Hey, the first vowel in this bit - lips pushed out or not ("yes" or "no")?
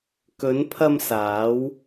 yes